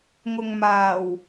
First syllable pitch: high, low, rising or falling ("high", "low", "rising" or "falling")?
low